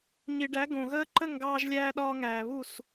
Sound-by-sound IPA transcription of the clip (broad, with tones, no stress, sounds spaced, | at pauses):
ɲ i˨ ɖ æ˨˦ ɡ õ˨ ɣ əː˦ ǃ ə˦˨ ŋ ɡ ɑː˧ ʒ lʲ æː˧ ɗ ɒː˧ ŋ æː˨ β u˦˨ s